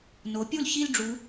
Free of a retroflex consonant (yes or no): no